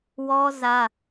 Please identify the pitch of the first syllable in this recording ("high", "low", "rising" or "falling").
high